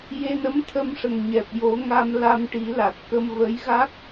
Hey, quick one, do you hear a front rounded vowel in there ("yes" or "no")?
no